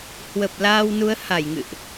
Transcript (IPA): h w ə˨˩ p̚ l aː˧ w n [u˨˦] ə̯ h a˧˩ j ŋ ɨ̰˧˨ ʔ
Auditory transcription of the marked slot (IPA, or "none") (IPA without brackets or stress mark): u˨˦